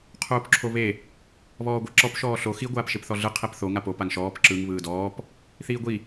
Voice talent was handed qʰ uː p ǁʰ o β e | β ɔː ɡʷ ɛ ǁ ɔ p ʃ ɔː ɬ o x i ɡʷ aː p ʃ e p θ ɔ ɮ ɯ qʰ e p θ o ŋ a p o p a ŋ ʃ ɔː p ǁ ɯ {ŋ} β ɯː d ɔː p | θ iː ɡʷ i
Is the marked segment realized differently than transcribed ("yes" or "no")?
no